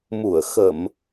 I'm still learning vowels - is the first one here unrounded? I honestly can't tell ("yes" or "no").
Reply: no